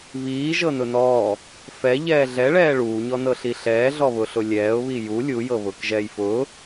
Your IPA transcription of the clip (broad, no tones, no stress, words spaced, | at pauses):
βiː ʒɤnʊnɔː | fɛ ʎɛːɮɛɭɛː ɭuːɲɔnɤɬi ɬɛːɮɔβʊɬʊ lʲɛːʊ̯βi ju lʲujɤβʊːk ʒɛːjfʊː